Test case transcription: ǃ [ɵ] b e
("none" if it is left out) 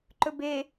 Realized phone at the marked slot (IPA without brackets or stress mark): ɵ